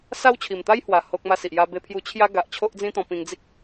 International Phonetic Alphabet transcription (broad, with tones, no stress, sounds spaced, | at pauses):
s a˦ w t͡ɕʰ i˨˩ m t̪ a˦ j h w a˨˩ h o˦ k̚ m a˥˧ s i˨ ʔ j a˦ b e˥˧ pʰ j u˥˧ t͡ɕʰ j a˦ ɡ a˦ ʔ t͡ɕʰ o˦ ʔ d͡z ĩ˦ t̪ ɔ̃˧ p ĩ˧ ŋ d͡z i˦ k̚